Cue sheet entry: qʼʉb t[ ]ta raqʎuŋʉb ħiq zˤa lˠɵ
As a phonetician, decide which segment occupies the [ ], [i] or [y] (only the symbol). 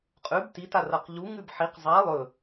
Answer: i